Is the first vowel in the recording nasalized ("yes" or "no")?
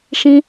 yes